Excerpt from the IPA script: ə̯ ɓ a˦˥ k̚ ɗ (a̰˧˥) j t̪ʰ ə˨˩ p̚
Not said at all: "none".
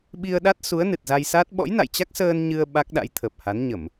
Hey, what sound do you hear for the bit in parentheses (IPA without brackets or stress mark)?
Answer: a̰˧˥